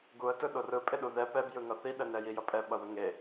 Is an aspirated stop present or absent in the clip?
absent